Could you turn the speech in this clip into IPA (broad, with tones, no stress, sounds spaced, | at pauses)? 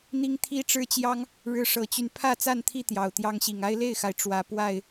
n̪ i˦ ŋ t̪ʰ i˦ ʈ͡ʂ ɻ̩˦ t͡ɕ j ɑ˦ ŋ | ɻ ɻ̩˦ ʂ ɤ˨˦ t͡ɕ y˧ n pʰ ä˥˨ t͡s a˥˨ n t̪ʰ i˥˨ t̪ j ɑ˨˩ ʊ̯ t̪ j ɑ˦ ŋ ɕ i˨˩ ŋ a˦ ɪ̯ l e˥˨ ɪ̯ x a˩ ɪ̯ ʈ͡ʂ w ä˨˦ p w a˥˨ ɪ̯